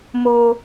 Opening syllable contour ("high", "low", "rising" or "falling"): high